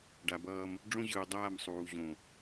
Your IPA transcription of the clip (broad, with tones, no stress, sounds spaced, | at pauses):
ɖ a˨ b ʌː˦ m | ɖ͡ʐ õ˦ ʑ ɯː˨ dˤ aː˦˨ m sˤ uː˨ ʑ õ˦˨